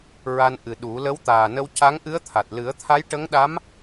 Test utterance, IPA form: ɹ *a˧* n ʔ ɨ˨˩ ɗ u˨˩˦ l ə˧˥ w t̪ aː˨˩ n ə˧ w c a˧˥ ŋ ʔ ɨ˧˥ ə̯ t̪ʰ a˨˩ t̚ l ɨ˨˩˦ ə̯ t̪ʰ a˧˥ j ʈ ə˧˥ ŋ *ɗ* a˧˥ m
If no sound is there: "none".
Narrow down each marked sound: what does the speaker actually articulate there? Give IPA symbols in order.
a˧, ɗ

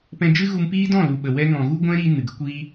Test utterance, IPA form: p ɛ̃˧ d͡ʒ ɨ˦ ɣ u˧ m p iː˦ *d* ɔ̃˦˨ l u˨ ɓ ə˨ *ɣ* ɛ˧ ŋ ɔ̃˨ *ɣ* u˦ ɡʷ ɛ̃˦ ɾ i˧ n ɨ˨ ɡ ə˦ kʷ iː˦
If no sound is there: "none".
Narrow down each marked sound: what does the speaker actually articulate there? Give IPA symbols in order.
d, w, ɣ

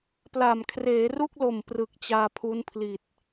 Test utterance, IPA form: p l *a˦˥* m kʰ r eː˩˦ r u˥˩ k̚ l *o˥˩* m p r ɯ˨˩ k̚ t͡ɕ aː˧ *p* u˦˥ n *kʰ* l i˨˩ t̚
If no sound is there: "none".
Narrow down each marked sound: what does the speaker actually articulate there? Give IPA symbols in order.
a˨˩, o˨˩, pʰ, pʰ

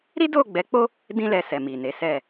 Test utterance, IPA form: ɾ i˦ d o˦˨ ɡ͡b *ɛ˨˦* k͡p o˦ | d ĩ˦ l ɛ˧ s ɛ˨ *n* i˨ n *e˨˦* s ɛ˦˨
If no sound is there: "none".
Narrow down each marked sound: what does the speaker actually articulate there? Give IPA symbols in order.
ɛ˨˦, m, e˨˦

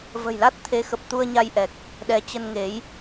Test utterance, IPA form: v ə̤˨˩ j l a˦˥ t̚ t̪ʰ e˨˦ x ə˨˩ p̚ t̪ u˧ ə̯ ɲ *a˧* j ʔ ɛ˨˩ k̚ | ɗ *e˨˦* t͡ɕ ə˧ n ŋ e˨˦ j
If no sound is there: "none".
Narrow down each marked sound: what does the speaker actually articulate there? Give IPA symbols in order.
a˧, ɛ˨˦

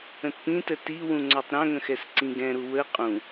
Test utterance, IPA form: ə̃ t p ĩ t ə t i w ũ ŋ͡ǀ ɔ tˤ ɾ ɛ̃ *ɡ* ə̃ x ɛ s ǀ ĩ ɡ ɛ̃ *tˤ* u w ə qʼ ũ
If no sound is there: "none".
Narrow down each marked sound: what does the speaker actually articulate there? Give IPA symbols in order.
ŋ, ɾ

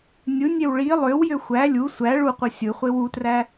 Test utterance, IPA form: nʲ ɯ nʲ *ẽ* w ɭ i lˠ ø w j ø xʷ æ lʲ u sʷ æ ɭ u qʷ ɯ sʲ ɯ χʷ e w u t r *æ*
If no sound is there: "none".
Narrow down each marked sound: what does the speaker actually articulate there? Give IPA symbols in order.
e, æ

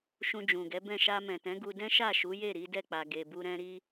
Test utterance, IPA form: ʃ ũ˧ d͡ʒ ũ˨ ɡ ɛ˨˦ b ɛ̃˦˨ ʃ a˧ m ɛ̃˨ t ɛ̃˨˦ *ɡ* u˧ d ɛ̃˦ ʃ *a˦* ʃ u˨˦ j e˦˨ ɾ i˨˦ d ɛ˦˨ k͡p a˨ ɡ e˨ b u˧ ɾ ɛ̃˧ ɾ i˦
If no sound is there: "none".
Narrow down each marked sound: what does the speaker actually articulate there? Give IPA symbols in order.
ɡ, a˦˨

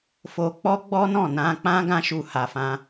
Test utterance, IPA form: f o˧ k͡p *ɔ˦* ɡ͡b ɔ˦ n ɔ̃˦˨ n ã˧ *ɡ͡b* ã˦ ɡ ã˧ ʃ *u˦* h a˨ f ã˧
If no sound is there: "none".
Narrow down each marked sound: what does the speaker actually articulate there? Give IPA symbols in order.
ɔ˦, k͡p, u˨

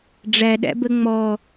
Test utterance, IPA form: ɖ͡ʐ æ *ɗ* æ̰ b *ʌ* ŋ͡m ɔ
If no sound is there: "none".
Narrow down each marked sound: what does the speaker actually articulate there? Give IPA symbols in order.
ɗ, ə

